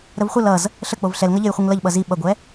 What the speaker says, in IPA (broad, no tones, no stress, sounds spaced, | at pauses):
ɾ ə v χʷ ʌ l ʌ z | ɬ ə k͡p o v ɬ ɛ l ŋ ʌ ʎ e j χʷ i ŋ l ʌ ʎ ɓ ʌ z i ɓ ʌ ɡʷ ɛ